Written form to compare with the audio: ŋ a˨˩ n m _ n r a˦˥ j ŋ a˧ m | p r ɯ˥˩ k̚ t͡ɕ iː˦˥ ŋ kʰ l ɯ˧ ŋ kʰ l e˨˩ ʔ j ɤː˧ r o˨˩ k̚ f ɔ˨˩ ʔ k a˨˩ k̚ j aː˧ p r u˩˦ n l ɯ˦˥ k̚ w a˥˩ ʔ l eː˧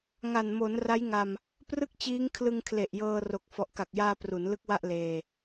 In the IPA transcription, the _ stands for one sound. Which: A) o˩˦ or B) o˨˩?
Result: A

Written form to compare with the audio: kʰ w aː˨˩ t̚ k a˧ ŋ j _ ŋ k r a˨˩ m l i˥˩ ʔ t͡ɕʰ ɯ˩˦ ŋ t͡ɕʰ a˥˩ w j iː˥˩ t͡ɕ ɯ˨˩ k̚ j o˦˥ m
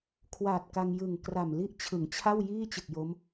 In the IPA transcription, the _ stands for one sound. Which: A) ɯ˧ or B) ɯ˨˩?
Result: B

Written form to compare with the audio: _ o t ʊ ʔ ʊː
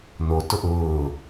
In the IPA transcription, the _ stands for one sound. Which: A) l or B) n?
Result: B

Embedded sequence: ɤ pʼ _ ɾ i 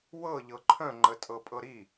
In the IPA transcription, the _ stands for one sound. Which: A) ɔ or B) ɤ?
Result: B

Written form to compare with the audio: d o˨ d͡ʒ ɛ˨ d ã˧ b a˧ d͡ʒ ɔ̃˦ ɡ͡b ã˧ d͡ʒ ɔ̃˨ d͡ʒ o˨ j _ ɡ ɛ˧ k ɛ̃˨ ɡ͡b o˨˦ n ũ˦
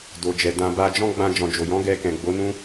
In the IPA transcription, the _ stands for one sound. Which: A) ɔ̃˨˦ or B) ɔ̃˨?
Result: A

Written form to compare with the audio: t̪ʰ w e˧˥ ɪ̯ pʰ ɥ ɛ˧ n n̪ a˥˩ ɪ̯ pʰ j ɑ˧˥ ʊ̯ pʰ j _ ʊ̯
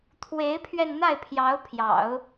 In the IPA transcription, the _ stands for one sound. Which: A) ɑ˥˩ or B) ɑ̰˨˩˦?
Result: B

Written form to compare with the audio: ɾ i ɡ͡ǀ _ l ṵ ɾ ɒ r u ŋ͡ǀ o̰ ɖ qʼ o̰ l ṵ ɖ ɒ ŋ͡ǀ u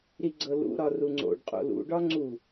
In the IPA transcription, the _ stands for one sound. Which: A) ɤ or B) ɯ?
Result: A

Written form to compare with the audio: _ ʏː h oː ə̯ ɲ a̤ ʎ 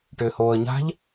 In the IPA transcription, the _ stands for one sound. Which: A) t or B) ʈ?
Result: B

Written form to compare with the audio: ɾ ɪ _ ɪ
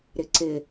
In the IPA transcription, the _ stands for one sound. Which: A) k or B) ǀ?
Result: B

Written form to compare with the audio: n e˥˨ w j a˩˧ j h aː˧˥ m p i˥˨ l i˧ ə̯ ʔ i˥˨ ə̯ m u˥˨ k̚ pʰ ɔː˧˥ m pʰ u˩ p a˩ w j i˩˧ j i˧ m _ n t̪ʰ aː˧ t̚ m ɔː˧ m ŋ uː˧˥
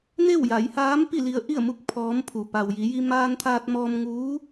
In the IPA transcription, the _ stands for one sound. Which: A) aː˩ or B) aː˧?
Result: B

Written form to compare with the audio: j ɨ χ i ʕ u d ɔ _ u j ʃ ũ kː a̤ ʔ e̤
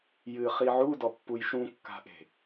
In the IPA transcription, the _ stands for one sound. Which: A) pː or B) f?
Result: A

